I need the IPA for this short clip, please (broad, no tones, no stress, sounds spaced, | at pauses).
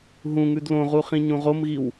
ɦ ũ ŋ ʉ d l õ ʁ u χ ĩ ɲ ũ ʁ o m ɣ i w